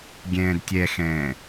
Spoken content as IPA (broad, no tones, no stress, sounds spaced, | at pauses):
ɡʲ ɛ̃ː d tʲ ɛ x ɛ̃ː